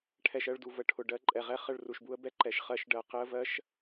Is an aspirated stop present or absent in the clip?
present